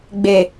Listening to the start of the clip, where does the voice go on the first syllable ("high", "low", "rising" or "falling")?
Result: low